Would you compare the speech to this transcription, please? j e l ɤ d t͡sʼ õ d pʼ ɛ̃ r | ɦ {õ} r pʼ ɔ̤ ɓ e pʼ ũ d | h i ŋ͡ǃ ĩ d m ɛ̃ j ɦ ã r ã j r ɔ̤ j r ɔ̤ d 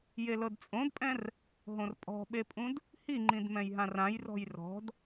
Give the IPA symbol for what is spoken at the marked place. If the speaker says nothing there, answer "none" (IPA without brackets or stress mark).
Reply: õ